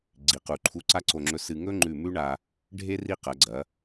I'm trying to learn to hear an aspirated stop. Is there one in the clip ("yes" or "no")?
yes